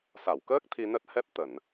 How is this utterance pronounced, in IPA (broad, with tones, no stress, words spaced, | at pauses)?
sa˧˩wkəː˦˥k̚ t̪ʰi˧nə˦˥t̚hɛ˦˥p̚ t̪ə˧˩˨n